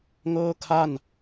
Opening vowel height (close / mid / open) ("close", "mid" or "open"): mid